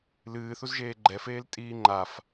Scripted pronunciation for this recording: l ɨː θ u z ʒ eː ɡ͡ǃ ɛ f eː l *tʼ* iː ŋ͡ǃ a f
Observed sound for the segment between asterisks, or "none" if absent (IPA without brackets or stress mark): tʼ